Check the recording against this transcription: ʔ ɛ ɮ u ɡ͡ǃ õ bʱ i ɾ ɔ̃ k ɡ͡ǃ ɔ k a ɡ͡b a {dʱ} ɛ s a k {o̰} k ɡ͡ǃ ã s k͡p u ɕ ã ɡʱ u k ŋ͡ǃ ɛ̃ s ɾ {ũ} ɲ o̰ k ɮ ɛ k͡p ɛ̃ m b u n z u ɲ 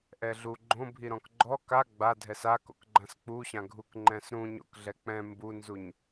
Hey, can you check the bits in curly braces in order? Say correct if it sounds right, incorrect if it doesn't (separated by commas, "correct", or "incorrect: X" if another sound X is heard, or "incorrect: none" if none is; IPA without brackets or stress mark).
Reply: correct, correct, correct